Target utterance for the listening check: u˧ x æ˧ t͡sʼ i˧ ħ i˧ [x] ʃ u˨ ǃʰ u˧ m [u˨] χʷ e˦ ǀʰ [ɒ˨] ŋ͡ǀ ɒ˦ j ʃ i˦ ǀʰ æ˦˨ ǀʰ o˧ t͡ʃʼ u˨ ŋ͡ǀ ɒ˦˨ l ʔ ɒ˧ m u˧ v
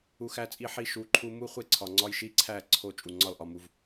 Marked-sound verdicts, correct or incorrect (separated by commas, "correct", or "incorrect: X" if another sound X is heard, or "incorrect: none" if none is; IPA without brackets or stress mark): incorrect: none, incorrect: u˦, correct